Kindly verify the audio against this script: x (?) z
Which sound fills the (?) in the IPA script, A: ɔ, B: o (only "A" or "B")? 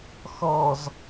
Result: A